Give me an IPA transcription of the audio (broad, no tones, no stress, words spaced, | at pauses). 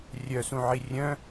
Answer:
rʲœsũʕi rʲœ̃